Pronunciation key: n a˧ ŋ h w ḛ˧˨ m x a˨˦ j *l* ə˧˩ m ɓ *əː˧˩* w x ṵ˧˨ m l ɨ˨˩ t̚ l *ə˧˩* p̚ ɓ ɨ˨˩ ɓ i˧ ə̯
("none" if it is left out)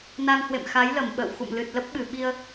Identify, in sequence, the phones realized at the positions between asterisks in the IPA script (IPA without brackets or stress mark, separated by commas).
l, ə̰ː˧˨, ə˦˥